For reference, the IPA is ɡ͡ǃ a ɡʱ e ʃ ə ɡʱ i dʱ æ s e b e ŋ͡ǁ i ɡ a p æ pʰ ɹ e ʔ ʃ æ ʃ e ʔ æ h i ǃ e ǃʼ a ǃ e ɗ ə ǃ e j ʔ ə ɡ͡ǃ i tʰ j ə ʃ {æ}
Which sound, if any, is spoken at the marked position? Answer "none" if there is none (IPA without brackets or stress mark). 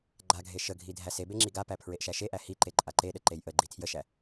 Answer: æ